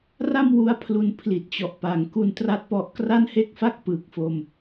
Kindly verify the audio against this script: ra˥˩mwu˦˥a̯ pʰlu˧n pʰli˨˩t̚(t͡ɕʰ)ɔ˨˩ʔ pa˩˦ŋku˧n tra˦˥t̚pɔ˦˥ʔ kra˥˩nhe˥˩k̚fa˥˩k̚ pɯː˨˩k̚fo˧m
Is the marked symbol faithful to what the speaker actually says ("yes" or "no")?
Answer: no